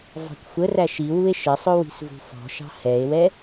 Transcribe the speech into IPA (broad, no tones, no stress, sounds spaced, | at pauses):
v ɑ̤ kʷ xʷ ə r æ ʃ i w u e̯ ʃ ə sˤ ʊ w i̤ s v ṳ f ɔ̤ ʃ ɑ̤ h ɛ e̯ w ɛ